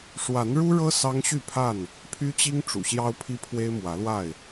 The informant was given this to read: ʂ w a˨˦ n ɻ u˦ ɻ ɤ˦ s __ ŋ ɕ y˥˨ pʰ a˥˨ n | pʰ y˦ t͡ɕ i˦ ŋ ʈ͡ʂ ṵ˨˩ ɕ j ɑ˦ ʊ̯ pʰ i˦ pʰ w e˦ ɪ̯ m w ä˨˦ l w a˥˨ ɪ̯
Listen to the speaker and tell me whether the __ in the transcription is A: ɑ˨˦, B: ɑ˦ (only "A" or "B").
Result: B